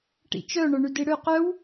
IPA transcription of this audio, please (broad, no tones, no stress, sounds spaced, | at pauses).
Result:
ʈ ḭ t͡ʃ œ ɳ œ ɳ y d i ɽ ø q œ w